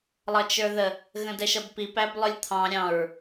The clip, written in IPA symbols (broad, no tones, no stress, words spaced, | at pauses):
lˠʌt͡ʃə˞ðə | ɣə̃dɛʃʌbpip æblˠʊlʲt̪ʰɑ̃ ɾʲɑ̃ɹ